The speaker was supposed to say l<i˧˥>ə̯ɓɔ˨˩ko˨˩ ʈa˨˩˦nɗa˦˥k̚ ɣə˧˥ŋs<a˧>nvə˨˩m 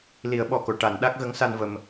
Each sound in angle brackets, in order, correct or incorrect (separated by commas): incorrect, correct